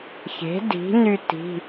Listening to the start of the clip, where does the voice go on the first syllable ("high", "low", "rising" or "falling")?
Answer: rising